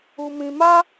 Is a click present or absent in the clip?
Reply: absent